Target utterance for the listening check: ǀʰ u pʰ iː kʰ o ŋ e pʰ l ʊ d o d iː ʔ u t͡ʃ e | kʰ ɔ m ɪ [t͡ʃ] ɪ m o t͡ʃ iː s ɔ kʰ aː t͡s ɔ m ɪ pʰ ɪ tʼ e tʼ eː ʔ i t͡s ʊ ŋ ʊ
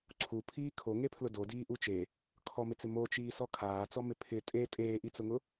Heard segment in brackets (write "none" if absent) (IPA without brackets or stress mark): t͡s